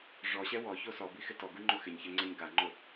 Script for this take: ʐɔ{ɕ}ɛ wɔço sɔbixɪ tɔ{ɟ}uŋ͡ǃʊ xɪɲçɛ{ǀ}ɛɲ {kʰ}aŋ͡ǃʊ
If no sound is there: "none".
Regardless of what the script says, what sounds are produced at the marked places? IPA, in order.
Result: ɕ, ɡ, ŋ͡ǀ, ɡ

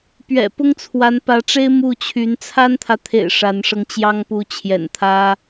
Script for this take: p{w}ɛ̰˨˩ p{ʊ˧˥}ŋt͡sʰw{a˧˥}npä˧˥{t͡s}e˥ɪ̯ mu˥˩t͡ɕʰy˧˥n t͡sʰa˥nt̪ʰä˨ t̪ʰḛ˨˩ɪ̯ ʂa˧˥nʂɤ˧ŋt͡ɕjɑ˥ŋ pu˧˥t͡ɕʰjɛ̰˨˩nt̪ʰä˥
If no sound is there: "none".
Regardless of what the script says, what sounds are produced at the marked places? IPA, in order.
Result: ɥ, ʊ˥, a˧˥, ʈ͡ʂ

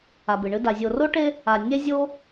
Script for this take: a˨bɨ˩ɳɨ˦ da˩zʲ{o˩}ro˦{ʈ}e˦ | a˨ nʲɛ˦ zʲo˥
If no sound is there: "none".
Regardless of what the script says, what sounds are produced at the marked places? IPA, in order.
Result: o˨, ʈ

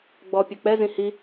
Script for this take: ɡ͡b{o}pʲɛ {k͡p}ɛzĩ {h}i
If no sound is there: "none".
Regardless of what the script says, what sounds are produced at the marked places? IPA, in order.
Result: ɔ, k͡p, h

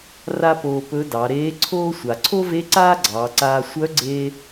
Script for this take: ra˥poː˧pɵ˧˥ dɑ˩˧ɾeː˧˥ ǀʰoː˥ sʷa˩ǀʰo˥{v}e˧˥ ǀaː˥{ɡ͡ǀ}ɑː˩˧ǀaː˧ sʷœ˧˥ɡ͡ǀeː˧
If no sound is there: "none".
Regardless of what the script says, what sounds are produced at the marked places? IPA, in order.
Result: v, ɡ͡ǀ

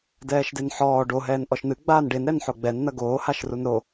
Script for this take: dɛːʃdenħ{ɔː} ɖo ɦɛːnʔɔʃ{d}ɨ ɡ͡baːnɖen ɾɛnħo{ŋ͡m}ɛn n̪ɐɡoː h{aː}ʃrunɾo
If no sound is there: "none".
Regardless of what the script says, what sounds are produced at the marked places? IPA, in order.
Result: ɔː, n̪, ɡ͡b, a

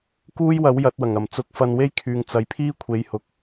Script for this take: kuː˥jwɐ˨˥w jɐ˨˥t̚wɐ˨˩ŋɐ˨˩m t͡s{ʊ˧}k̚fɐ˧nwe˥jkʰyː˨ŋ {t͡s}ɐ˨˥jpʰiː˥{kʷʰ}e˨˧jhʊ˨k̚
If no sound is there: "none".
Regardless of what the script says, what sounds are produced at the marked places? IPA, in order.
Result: ʊ˧, t͡s, kʷʰ

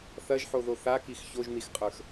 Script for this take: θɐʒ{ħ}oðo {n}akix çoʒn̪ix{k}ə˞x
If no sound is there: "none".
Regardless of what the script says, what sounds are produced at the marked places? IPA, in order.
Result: ħ, θ, qʼ

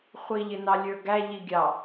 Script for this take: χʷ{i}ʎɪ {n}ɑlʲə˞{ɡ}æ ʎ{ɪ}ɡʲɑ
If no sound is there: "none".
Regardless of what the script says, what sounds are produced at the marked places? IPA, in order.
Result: i, n, ɡ, i

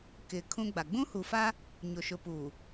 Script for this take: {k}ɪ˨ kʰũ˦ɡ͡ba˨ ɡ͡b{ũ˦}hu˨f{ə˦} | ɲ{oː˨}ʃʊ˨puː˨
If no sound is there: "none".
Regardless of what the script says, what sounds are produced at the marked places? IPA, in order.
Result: k, ũ˦, a˦, o˨

